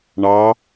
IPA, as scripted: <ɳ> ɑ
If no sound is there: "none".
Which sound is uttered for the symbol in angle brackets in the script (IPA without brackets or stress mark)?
ɳ